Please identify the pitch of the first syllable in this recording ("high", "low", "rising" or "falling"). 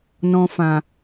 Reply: low